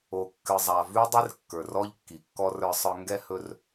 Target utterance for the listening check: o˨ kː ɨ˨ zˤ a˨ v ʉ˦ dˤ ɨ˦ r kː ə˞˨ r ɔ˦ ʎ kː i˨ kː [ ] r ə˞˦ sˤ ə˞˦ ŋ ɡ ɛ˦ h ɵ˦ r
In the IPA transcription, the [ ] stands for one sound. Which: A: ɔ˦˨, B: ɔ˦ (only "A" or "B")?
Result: B